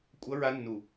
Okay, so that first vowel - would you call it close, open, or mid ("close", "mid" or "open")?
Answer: mid